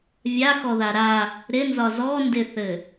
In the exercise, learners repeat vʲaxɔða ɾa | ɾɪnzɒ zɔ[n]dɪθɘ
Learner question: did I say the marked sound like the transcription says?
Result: yes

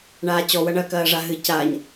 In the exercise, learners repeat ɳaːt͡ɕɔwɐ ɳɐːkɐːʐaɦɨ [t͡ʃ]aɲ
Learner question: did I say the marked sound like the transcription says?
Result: no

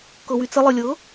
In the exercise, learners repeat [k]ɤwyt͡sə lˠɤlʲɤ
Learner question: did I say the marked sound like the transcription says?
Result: yes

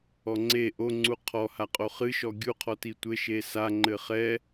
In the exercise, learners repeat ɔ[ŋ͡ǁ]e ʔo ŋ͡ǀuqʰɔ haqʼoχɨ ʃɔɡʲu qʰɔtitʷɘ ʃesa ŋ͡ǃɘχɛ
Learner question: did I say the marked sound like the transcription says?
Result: no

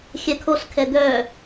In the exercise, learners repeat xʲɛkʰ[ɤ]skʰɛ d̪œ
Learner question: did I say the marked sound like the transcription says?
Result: no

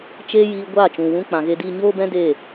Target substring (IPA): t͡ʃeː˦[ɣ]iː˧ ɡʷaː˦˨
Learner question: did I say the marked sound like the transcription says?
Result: no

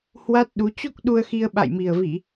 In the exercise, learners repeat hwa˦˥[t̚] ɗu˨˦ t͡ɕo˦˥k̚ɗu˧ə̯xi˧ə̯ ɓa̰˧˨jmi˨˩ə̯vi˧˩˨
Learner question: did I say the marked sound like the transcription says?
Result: yes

